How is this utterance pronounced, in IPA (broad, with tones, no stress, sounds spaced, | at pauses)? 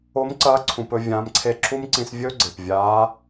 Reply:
o˧˥ m ǀ ɐː˧˥ ǀʰ ũ˧ p ɵ˥ vʲ ãː˧˥ m ǀʰ e˥ ǁʰ u˥ m ǀ ĩ˧ s vʲ ɵː˥ ɡ͡ǀ e˩ p vʲ aː˧˥